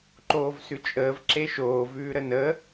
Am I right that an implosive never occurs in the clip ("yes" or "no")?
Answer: yes